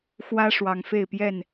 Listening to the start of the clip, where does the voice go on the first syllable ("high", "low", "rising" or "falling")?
high